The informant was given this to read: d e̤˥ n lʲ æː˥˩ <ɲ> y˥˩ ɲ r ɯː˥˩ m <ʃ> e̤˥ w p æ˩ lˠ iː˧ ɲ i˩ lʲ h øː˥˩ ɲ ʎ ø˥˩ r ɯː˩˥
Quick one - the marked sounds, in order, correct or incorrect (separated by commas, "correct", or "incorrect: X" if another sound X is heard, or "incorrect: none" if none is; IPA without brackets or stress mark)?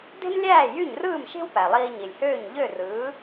incorrect: j, correct